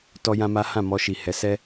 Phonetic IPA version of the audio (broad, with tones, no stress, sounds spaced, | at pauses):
t ɔ˦ j ã˦ m a˦ h ã˦˨ m ɔ˧ ʃ i˨ h ɛ˨˦ s ɛ˦